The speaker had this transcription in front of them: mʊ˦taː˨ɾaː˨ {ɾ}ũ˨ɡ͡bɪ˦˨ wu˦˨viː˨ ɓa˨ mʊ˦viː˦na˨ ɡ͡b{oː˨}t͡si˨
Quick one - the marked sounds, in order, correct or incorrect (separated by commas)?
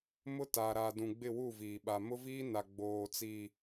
incorrect, correct